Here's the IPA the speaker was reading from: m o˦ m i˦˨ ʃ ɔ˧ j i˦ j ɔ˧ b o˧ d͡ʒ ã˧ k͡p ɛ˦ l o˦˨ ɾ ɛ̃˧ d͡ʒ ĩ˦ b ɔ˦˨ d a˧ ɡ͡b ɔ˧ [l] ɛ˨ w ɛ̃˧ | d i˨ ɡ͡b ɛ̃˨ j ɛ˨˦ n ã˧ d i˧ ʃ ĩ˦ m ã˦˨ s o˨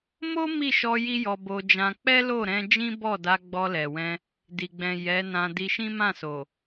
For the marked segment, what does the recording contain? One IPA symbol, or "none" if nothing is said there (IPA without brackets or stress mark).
l